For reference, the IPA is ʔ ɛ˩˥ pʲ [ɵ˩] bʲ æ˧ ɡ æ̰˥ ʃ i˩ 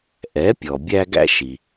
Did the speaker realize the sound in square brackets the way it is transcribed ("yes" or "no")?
no